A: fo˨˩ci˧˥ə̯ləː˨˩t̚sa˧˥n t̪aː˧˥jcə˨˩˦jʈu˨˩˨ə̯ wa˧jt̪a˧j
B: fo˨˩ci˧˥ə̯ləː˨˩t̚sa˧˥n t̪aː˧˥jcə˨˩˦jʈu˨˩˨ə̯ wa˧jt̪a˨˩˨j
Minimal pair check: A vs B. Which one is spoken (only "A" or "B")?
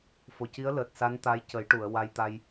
A